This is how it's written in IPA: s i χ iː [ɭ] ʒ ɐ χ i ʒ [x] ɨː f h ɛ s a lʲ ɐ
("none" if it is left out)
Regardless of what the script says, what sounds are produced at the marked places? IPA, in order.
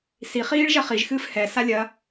ɭ, x

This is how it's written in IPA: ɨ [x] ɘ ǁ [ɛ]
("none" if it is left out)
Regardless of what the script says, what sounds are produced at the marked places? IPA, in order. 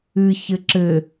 ç, ɘ

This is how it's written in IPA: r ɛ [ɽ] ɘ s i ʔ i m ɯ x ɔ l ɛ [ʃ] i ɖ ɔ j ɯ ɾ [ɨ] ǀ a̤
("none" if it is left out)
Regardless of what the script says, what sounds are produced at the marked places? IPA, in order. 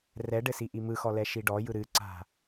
ɖ, ʃ, ɨ

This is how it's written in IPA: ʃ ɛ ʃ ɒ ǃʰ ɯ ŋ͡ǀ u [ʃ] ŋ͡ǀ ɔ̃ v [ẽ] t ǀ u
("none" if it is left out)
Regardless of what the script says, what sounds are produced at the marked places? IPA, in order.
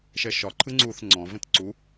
θ, ẽ

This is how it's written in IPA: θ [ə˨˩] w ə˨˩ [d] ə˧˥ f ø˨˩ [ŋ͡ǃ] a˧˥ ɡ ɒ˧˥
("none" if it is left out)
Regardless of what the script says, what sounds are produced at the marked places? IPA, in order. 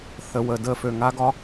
ə˨˩, d, ŋ

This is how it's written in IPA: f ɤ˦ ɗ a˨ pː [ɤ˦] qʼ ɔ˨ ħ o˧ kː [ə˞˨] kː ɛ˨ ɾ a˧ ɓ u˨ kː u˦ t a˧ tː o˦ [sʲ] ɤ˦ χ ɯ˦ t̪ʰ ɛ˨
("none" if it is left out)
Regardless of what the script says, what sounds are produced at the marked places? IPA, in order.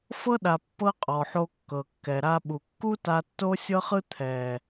ɤ˦, ɤ˨, sʲ

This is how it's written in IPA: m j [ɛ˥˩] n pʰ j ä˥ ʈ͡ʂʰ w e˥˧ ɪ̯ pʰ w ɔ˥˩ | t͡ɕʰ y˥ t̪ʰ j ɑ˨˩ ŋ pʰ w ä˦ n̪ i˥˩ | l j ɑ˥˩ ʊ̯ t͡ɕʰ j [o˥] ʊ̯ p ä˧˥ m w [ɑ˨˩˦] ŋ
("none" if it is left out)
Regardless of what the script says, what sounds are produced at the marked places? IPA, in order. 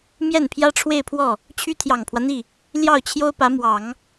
ɛ˥˩, o˥, ɑ˨˩˦

